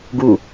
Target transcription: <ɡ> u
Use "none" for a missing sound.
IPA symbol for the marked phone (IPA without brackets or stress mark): ɡ